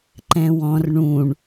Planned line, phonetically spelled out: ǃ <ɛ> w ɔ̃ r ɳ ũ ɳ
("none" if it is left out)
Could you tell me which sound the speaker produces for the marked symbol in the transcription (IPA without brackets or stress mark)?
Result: ɛ̃